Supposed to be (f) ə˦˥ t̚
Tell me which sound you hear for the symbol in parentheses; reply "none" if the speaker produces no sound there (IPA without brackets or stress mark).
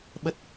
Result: ɓ